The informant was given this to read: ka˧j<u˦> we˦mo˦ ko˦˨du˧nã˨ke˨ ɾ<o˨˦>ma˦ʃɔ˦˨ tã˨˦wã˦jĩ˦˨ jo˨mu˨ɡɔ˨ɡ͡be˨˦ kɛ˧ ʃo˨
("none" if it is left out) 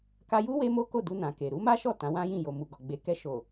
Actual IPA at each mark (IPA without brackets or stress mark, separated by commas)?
u˦, u˨˦